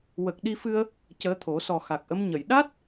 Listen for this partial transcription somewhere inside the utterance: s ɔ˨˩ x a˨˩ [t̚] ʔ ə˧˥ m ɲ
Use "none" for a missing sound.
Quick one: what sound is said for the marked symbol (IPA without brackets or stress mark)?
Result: k̚